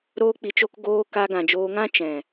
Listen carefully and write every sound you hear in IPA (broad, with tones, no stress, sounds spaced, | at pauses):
ɾ oː˧ k͡p i˨ t͡ʃ o˧ k ɡ oː˧ k a˧ ɡ ã˨ d͡ʒ oː˧ ŋ ã˦ t͡ʃ ɛ̃˨